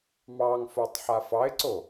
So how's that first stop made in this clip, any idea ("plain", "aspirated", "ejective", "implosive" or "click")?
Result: plain